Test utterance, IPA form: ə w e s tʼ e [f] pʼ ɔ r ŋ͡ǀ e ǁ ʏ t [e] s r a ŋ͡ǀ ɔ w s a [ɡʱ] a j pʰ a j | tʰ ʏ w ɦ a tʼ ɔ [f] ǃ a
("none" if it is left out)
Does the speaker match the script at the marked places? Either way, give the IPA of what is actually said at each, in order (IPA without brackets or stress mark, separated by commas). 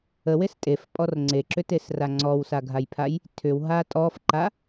f, e, ɡʱ, f